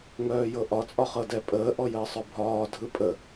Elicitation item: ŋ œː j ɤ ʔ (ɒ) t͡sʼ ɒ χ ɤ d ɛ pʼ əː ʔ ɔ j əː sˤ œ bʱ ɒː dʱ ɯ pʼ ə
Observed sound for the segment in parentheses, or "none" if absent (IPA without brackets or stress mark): ɒ